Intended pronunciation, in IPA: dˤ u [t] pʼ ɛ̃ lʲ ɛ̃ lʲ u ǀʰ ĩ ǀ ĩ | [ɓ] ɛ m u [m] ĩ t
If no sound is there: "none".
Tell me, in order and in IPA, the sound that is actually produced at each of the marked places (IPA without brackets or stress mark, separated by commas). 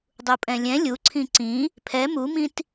none, pʰ, m